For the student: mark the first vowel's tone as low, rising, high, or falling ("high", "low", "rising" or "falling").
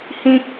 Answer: high